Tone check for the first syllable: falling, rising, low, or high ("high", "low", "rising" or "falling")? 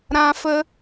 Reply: high